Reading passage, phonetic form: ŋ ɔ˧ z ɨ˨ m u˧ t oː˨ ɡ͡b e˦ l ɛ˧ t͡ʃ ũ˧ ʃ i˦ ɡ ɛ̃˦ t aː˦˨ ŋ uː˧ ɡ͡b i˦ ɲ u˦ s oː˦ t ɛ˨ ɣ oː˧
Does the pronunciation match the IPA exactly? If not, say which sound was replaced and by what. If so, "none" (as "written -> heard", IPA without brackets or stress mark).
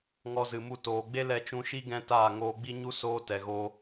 uː˧ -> oː˧